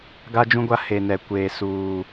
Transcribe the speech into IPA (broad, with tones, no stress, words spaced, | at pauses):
ɡa˦d͡ʒũ˦ɡʷa˦ he˨ nɛ˨kʷeː˨suː˨